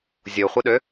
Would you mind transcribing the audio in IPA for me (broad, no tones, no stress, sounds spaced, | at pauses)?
zʲ o χʷ ɪ ɗ ø